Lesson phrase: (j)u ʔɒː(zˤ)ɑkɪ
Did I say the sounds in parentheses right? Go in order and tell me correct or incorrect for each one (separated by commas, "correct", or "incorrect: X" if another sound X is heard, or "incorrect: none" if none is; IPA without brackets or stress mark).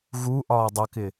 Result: incorrect: ɣ, incorrect: dˤ